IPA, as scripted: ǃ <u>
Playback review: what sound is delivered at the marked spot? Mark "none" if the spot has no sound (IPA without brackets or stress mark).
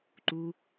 u